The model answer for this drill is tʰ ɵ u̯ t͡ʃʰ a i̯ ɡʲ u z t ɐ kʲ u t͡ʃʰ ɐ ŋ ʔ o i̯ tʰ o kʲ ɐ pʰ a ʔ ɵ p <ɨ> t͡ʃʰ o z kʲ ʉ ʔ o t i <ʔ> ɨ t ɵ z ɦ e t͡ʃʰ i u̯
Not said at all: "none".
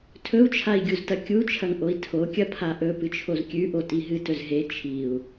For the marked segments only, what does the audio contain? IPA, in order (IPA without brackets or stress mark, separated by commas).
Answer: ɨ, ɦ